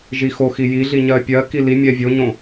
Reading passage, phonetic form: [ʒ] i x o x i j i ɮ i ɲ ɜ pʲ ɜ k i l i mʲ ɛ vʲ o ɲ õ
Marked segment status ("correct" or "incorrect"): correct